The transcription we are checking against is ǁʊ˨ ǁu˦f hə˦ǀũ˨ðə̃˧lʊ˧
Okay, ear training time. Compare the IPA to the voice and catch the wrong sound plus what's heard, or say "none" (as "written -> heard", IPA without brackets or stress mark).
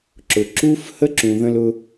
ǀ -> ǁ